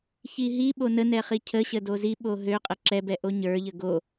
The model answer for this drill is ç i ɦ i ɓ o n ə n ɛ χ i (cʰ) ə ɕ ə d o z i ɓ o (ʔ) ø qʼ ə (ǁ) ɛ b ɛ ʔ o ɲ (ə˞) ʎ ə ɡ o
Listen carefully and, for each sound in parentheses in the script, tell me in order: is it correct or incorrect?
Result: correct, incorrect: ɦ, correct, correct

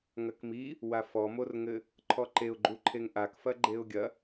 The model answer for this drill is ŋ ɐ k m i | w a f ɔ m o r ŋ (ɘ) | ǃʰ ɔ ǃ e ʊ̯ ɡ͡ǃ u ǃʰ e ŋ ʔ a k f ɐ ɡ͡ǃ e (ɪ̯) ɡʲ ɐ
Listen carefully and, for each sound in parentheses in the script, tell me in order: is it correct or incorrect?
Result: correct, incorrect: ʊ̯

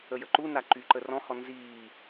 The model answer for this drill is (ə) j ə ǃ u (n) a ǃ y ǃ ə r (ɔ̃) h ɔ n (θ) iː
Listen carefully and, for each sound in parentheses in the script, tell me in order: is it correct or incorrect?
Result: correct, correct, correct, incorrect: z

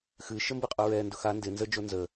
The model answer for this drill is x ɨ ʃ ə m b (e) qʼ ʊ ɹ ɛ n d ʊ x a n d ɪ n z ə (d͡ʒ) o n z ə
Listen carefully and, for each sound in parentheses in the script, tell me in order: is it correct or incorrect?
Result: incorrect: ɨ, correct

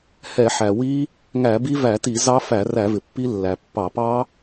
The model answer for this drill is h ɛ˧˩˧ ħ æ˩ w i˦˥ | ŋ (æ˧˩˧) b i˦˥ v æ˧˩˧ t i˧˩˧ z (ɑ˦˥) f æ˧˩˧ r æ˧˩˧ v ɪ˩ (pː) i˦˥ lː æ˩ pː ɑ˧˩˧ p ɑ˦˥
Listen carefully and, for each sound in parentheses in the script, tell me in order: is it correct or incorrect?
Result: correct, correct, correct

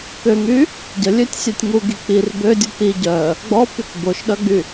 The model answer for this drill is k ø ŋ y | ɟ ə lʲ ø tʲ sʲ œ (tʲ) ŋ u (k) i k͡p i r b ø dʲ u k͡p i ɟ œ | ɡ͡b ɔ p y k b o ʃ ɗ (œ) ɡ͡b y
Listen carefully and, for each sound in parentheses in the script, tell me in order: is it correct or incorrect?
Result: correct, incorrect: ɡ, correct

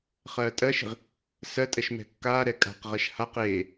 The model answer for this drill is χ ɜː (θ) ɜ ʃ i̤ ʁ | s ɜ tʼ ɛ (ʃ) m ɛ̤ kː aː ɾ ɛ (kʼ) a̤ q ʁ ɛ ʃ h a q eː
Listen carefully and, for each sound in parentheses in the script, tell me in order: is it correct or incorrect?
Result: incorrect: tʼ, correct, correct

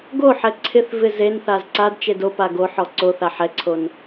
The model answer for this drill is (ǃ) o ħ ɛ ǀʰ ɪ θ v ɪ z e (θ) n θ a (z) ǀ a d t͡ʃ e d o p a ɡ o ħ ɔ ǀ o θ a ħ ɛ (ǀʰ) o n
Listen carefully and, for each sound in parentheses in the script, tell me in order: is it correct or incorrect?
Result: incorrect: ɡ, incorrect: none, correct, correct

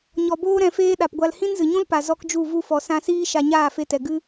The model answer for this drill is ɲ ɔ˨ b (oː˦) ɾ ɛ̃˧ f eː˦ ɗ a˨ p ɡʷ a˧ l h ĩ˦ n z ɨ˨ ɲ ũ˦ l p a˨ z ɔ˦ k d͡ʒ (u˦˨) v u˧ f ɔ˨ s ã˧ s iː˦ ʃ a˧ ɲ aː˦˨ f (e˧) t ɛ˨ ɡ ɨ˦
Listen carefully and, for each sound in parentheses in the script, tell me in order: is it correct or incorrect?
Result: correct, correct, correct

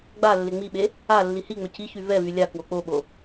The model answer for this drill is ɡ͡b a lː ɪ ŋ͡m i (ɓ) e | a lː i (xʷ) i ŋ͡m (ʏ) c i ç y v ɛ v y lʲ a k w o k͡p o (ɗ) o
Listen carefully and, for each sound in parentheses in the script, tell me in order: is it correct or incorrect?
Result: correct, incorrect: h, correct, incorrect: ɓ

